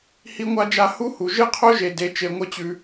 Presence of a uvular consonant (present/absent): present